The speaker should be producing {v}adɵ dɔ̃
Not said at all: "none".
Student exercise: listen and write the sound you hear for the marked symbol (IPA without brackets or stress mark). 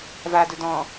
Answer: v